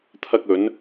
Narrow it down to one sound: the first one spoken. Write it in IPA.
t̪ʰ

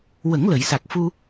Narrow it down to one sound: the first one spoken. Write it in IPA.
w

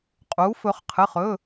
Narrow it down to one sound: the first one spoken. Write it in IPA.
qʼ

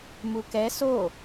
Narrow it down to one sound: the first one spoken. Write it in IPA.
m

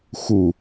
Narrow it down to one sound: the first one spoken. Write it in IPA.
x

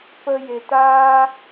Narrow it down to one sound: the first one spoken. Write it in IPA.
p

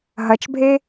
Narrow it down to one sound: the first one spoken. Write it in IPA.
ɦ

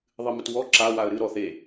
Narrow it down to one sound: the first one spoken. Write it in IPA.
ðˤ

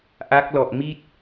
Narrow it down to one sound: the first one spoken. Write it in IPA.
ʔ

